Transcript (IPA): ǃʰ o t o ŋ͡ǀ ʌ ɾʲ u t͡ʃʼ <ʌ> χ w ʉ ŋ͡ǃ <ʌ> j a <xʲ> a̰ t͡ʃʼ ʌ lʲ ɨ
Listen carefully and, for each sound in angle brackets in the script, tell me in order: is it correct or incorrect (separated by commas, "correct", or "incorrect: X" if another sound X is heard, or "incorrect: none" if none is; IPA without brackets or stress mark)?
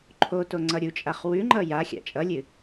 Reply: incorrect: a, correct, correct